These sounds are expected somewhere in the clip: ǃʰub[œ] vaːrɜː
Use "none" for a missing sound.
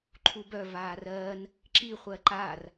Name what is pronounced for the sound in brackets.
œ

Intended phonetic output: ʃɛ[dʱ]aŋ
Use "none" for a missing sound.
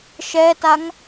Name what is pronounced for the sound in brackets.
t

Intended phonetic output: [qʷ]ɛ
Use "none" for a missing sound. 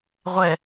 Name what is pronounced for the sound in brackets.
ʁʷ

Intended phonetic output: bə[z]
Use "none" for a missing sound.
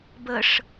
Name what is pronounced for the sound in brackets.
ʂ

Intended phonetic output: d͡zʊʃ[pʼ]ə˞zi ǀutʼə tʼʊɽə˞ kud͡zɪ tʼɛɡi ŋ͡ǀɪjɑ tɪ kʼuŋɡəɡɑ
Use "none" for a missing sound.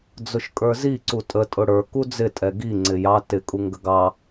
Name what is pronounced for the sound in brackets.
kʼ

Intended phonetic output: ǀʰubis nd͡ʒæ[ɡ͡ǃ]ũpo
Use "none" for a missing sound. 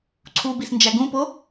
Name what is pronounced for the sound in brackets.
ɡ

